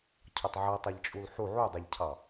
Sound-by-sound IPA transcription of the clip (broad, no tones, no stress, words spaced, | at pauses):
cʰɒtˤʕʌ tˤʌʎt͡ʃʼulħu ʕudˤɛʎcʰɑ